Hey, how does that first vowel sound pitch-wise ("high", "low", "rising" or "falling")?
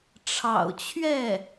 low